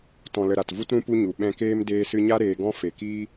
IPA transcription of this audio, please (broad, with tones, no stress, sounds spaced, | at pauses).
t ɔ̃˨ l ə˨ ɾ a˨ t v u˦ t ɾ ũ˦ p u˦ ɲ u˨ ɓ ɛ̃˧ k eː˦ m d eː˧ s ɨ˧ ɲ a˦ ɾ eː˧ ɡ ɔ̃˦ f e˨ k iː˦